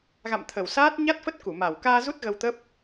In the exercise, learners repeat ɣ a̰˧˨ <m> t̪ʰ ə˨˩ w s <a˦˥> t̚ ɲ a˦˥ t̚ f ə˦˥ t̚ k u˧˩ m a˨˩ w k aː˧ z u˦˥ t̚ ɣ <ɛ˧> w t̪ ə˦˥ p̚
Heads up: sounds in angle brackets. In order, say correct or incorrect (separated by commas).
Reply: correct, incorrect, incorrect